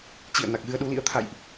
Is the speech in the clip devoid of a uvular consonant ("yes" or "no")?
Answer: yes